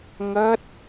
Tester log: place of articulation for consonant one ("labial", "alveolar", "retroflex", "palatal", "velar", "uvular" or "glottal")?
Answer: velar